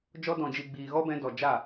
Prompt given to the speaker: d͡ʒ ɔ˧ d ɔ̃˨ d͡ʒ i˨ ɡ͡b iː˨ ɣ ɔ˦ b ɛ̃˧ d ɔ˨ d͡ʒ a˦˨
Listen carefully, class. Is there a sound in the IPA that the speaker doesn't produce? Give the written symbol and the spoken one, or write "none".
none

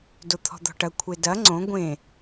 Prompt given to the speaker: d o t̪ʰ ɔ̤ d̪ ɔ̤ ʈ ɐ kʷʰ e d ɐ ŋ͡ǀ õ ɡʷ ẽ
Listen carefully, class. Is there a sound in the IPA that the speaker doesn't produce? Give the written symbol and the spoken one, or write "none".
none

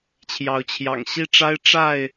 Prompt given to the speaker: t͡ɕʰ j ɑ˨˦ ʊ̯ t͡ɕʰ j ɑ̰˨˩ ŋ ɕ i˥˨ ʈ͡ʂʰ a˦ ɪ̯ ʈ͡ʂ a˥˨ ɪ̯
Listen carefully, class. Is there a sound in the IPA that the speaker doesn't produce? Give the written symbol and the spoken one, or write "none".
ʈ͡ʂʰ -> ʈ͡ʂ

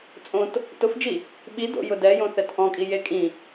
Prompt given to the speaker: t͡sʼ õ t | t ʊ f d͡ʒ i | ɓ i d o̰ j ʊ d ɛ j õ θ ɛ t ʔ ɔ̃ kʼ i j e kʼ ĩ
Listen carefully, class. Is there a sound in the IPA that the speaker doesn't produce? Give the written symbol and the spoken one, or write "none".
none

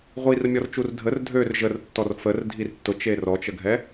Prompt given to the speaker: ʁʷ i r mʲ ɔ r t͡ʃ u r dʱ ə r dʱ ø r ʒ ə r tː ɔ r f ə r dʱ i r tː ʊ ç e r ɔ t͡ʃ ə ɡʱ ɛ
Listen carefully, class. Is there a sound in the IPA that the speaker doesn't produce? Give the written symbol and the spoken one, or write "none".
ç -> t͡ʃ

